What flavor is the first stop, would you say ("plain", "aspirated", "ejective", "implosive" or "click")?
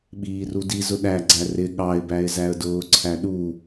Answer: implosive